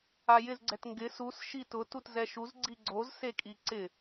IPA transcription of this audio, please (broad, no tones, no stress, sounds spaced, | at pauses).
a j ɪ z ɡ͡ǀ ɛ t ŋ ɡ ɪ s u s ʃ i t ʊ t u t z ɛ ʃ u z ɡ͡ǀ i ɡ͡ǀ o z s e kʼ i ǀ ɪ